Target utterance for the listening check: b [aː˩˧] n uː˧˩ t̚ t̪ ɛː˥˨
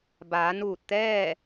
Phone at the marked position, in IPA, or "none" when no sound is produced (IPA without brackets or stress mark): aː˩˧